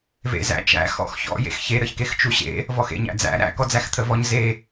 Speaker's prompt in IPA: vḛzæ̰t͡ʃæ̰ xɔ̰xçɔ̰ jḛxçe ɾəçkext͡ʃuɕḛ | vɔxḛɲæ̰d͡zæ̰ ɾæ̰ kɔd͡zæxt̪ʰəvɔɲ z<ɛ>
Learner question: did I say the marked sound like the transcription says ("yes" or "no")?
no